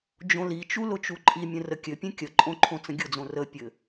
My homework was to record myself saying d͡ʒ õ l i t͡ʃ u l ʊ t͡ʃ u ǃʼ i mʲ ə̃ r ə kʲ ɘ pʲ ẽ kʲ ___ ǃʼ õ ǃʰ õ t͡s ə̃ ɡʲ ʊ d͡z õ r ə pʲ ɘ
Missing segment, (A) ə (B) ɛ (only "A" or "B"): A